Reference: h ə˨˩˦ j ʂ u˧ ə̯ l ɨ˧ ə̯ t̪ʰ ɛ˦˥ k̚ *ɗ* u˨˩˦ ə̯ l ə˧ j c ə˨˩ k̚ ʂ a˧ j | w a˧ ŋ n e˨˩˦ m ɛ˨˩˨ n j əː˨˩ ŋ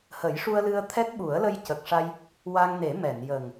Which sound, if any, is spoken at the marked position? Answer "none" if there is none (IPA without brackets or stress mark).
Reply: ɓ